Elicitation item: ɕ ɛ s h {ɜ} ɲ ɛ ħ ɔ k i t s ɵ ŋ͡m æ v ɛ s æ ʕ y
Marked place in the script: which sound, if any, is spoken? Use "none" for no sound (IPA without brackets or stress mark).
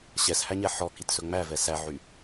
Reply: æ